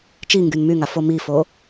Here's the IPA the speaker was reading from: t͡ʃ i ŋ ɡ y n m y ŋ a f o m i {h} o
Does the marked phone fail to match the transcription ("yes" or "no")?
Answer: yes